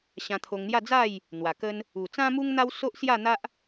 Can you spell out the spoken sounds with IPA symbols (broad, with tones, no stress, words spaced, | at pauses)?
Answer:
ɕã˧t̪ʰo˧ŋn̪ja˥˧ d͡za˥˧j | n̪wa˨˩kə˦n | u˨˩t͡sã˦mu˦ŋn̪a˦w so˦ʔsja˥˧ n̪a˦ʔ